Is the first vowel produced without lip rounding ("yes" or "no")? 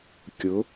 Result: no